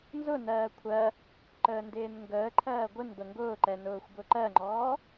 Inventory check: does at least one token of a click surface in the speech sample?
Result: yes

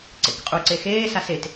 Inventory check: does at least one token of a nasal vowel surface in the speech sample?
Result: no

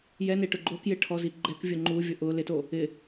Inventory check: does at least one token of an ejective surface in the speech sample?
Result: no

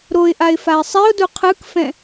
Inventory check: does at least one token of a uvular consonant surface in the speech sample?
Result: yes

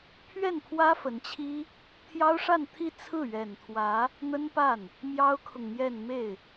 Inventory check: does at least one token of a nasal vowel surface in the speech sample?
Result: no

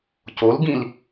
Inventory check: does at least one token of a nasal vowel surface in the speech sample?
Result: yes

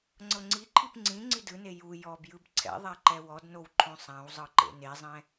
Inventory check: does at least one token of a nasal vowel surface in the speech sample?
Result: yes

